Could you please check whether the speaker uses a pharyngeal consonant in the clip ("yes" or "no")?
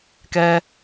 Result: no